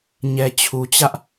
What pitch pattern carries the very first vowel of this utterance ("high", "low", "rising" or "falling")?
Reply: low